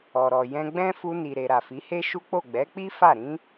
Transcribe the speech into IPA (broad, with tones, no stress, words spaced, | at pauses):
ɔ˨ɾɔ˨ jɛ̃˧ɡ͡bɛ̃˦ fu˧ni˨ ɾe˨ ɾa˨fi˨˦he˦ ʃu˦k͡po˦˨ ɡ͡bɛ˨˦k͡pi˦ fa˦˨ ɾĩ˧